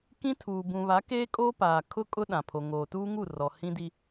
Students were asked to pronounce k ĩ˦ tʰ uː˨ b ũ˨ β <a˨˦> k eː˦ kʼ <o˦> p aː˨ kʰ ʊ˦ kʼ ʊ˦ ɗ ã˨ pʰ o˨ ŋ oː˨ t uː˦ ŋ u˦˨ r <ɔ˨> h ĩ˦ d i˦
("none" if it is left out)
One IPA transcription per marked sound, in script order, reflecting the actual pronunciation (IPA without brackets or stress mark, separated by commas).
a˨˦, oː˦, ɔ˨